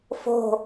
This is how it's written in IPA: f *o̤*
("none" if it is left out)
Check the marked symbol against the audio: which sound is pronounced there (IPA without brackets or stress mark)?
o̤